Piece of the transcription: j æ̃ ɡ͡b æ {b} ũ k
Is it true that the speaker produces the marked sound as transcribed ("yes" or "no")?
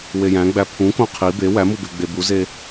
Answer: no